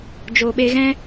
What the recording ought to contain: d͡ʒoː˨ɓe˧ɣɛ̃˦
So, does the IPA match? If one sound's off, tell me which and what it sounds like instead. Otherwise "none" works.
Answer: none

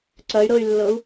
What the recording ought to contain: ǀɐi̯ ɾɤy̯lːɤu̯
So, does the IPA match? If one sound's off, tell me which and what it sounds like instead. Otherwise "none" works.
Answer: i̯ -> y̯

